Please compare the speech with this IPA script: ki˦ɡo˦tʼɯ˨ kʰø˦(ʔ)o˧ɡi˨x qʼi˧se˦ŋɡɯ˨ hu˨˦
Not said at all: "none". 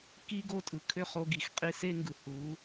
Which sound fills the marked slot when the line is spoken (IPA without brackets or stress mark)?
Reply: χ